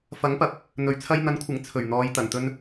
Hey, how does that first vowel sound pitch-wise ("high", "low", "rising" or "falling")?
rising